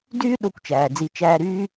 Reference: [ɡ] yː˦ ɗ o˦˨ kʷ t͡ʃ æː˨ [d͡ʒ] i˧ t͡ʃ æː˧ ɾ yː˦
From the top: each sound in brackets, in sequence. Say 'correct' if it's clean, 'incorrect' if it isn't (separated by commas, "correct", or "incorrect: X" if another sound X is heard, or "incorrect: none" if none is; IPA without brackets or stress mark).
incorrect: d, incorrect: d͡z